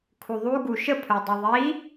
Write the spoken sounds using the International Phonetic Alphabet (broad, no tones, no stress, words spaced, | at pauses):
kʰuðˤu ɡuʃəpʰœ dˤuðˤi